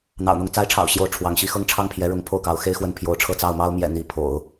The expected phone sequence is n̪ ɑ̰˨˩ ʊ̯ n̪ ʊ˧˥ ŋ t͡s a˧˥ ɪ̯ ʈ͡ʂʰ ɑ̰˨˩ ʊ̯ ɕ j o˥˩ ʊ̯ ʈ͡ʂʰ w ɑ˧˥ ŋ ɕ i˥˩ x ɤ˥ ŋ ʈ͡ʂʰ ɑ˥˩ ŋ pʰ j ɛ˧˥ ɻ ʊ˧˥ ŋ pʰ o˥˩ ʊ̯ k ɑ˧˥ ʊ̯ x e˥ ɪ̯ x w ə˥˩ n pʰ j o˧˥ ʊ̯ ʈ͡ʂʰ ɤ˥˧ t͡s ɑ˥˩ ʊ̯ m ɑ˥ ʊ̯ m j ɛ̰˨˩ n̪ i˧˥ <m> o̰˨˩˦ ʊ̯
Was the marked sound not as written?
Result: yes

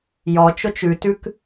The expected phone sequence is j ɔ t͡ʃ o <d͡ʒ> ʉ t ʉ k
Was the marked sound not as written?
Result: yes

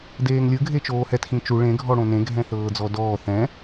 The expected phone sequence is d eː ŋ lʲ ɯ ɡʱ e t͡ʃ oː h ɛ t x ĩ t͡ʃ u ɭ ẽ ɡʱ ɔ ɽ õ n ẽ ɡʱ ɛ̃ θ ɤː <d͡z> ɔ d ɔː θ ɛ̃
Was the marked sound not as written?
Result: no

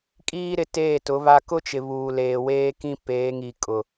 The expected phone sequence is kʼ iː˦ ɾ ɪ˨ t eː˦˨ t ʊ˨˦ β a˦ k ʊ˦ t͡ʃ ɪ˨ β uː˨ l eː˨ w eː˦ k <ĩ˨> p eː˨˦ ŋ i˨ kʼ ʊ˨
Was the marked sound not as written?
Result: yes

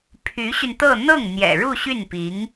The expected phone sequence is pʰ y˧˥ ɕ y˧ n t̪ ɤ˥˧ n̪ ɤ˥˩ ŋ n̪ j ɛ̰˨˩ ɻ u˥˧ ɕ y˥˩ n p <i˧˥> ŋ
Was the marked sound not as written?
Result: no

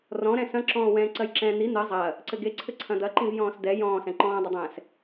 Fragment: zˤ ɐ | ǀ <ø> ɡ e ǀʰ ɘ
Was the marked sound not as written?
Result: yes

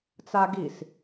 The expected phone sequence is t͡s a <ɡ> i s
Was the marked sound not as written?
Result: no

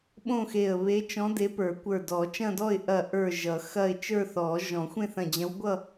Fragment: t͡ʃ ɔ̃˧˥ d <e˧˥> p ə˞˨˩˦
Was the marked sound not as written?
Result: no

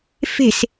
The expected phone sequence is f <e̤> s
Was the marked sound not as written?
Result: no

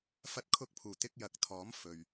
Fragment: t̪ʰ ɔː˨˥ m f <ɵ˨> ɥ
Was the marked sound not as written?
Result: no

